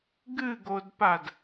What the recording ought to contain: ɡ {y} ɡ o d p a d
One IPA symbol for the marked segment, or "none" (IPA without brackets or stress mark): ɨ